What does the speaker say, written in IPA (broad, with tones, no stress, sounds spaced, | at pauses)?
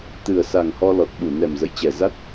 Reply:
t̪ ɨ˨˩ ə̯ s a˨˩ ŋ h ɔ˧ l ɔ˨˩ t̚ ɓ u˧˩ n ɛ˨˩ m z ə̰˧˨ j t͡ɕ ɛ˨˩ z a˦˥ t̚